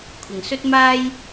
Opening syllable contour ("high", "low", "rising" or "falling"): low